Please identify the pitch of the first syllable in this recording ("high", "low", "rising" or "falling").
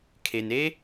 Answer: low